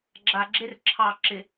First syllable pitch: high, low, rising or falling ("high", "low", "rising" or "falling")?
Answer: low